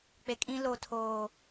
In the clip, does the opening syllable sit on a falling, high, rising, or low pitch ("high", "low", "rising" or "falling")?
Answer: low